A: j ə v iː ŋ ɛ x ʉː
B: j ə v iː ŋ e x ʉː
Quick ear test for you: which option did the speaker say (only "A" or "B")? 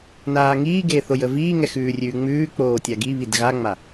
A